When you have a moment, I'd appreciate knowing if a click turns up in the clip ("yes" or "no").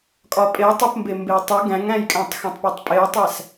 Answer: no